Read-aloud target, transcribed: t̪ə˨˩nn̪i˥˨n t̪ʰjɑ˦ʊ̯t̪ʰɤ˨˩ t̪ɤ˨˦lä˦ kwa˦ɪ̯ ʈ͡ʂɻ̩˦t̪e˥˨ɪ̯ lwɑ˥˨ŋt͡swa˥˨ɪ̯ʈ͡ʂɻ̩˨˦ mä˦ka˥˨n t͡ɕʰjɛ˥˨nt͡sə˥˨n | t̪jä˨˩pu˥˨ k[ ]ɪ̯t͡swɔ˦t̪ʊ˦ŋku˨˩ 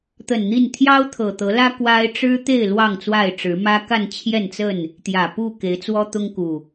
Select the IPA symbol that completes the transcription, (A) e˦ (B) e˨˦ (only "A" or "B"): B